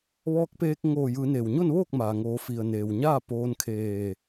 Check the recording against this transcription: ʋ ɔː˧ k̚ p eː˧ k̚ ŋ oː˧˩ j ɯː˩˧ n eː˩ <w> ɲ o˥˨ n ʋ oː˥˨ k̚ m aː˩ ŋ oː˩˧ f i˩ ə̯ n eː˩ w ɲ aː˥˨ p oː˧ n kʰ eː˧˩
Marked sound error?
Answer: no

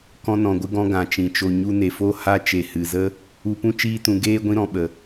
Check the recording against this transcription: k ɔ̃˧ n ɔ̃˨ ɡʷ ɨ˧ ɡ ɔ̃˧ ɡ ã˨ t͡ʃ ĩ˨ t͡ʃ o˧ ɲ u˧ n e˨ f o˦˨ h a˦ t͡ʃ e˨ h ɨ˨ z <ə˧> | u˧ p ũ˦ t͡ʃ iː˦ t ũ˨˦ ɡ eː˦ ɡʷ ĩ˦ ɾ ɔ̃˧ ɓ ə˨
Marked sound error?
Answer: yes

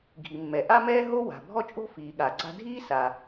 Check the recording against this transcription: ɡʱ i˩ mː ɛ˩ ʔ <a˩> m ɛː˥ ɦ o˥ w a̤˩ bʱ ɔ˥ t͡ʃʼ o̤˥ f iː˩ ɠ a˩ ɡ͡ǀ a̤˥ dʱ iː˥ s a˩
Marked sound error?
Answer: yes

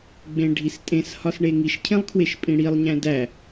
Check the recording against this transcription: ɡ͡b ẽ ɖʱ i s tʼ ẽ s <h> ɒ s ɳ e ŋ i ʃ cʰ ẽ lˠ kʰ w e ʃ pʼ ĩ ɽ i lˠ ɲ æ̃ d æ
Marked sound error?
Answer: no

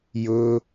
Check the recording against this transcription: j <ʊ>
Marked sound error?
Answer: no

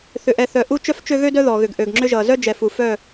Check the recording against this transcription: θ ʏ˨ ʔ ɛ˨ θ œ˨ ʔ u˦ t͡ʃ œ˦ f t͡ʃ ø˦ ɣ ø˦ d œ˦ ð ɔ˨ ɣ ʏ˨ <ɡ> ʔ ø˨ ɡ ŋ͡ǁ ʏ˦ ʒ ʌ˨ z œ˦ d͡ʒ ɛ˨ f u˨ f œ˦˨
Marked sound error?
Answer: no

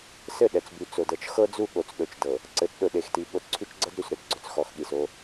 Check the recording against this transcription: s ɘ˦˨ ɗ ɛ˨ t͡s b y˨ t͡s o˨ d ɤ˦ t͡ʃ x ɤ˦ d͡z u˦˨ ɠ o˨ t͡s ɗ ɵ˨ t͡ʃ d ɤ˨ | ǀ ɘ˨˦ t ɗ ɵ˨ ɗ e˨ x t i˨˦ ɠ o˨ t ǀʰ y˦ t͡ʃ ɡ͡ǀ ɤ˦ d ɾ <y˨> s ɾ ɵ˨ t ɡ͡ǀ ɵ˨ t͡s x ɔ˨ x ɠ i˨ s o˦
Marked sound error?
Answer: no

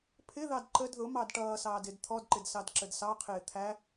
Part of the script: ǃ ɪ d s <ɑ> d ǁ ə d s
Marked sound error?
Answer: no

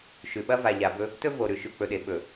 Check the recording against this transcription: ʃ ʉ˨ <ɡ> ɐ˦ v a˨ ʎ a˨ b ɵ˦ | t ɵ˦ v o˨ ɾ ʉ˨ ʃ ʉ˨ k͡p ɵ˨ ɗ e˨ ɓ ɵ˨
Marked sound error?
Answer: yes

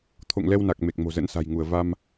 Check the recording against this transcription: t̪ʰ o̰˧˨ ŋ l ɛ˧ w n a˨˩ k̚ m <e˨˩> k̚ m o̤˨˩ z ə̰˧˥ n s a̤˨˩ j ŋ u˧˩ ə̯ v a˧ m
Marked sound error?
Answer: no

